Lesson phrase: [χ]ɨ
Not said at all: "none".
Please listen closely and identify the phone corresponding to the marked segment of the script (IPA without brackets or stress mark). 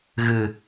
ɣ